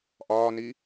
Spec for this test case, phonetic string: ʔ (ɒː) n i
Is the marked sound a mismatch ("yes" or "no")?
no